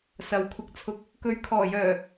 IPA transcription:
s ɐ˨ w kʷʰ ɪ˧ k̚ t͡sʰ ʊ˧ k̚ | k ɵ˨˧ ɥ kʰ ɔː˨˩ j œː˨˩

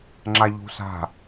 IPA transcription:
ŋ͡ǁ a ʎ ṳ s a̤

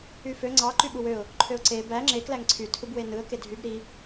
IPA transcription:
y f ø ŋ͡ǀ ɑ ǃ y ɓ u w ø ʊ̯ | ǃʰ ø ʊ̯ ǀ e b æ ŋ͡ǁ e k l æ ŋ ǀʰ y tʰ u b w e n ɯ ə̯ k e dʱ y b ɾ i

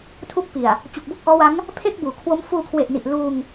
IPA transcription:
tʰ u˦˥ k̚ p i˨˩ a̯ | t͡ɕ u˨˩ k̚ b u˥˩ k̚ ʔ ɔː˦˥ w a˦˥ ŋ | pʰ e˥˩ k̚ b uː˩˦ kʰ w o˦˥ m f uː˧ kʰ w e˨˩ ʔ n i˨˩ ʔ l uː˧ ŋ

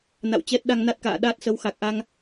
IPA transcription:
n a̰˧˨ w t͡ɕ ɛ˦˥ t̚ ɗ a˧ ŋ n a˦˥ t̚ k a̰ː˧˨ ɗ aː˦˥ t̚ s ə˨˦ w x a˨˩ k̚ ʔ a˧ ŋ

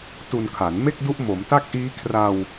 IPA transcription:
t u˧ n kʰ a˩˦ n m e˥˩ k̚ d u˦˥ ʔ m o˩˦ m t a˥˩ k̚ ʔ iː˦˥ kʰ r a˧ w

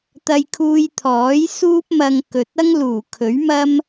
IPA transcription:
t̪ ɐ˧ j kʰ uː˧ j t̪ʰ ɔː˨˥ j s uː˥ p̚ m ɐ˧ ŋ k ɵ˨ t̚ ɐ˥ ŋ l uː˨˩ kʰ ɵ˨˥ ɥ m ɐ˥ m

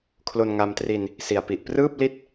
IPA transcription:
kʰ l o˧ n ŋ a˧ m t r i˧ n | s i˨˩ a̯ p i˨˩ ʔ p r ɯː˥˩ p̚ l i˥˩ t̚

